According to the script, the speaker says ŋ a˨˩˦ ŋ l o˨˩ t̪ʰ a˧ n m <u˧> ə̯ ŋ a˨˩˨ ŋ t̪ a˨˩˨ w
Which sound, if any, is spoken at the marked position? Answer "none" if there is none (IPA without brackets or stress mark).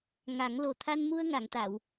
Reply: u˧